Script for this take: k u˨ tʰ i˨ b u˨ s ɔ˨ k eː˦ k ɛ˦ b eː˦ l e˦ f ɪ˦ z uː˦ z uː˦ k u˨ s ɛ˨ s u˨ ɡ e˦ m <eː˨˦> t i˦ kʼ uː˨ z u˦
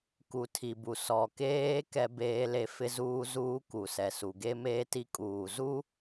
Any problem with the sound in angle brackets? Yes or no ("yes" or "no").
yes